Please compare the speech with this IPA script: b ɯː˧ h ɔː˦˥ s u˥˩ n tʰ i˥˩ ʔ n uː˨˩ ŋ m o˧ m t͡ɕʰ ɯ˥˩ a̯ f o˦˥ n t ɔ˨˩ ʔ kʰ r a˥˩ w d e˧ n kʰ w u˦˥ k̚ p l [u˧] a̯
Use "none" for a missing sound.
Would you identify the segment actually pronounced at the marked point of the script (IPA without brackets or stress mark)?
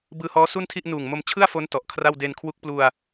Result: u˧